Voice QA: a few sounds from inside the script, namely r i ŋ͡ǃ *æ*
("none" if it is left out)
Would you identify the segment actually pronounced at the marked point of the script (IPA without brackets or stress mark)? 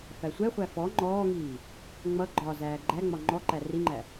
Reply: æ